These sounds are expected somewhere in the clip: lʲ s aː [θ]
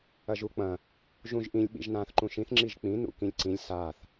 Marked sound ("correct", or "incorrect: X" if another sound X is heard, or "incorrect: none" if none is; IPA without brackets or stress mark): correct